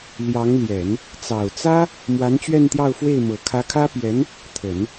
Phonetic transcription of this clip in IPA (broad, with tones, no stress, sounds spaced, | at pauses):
l j ɑ˧˥ ŋ l j ɛ˨˩˦ n | t͡s ɑ˨˩ ʊ̯ t͡s ä˥ | m w a˧˥ n t͡ɕ ɥ ɛ˥˧ n t̪ j ɑ˥˧ ʊ̯ f w e˥˩ ɪ̯ m ɤ˨˩ kʰ ä˧˥ kʰ ä˥ p j ɛ˧˥ n | t̪ʰ ə˨˩˦ n